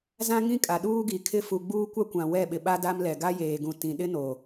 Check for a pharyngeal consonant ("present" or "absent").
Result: absent